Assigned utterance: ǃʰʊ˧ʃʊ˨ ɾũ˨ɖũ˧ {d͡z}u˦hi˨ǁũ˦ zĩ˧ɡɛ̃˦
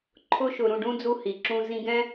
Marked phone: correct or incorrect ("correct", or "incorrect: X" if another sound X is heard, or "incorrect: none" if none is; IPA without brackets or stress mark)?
correct